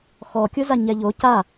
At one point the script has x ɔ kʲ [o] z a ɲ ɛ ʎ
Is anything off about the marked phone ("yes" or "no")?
no